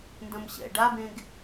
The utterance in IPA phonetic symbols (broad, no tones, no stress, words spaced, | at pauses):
ndɐ̃mɕɛ̰ ɖabẽɡ